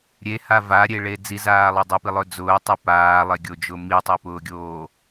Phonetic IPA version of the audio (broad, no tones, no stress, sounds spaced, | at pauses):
ɾʲ e h a v a ɾʲ e ɭ e d͡z i z aː lˠ e dˤ y p i lˠ ɵ d͡z ʊː tˤ y p aː lˠ e ɡʲ o d͡ʒ ʊ m i tˤ e p ʊː ɡʲ oː